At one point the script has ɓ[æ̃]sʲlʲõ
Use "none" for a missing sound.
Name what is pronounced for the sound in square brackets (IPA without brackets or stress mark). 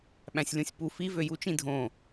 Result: æ̃